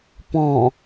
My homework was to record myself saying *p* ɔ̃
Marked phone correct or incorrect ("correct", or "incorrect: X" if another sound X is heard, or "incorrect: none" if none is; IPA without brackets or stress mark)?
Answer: correct